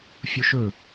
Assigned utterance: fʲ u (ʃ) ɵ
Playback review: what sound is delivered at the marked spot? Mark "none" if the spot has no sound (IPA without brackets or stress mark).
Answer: ʃ